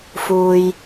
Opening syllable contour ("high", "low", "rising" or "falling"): low